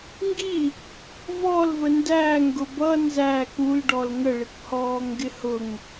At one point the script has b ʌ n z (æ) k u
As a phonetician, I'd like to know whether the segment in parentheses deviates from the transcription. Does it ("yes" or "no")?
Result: no